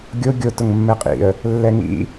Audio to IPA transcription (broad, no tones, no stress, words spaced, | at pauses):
ɡʲo ɡʲot ʊŋmːɛqʼḭə̯ | lːɛŋḭ